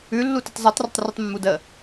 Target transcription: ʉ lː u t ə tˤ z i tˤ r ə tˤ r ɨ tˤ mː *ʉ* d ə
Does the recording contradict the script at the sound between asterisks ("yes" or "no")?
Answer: yes